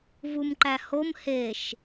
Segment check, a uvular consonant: absent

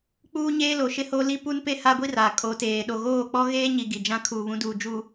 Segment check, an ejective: present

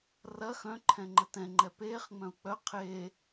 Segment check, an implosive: absent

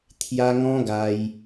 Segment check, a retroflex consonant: absent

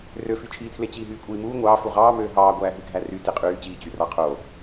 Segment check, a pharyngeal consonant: absent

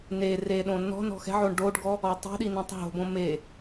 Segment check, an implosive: present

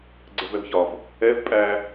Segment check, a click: present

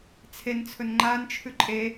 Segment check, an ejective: present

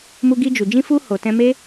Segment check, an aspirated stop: absent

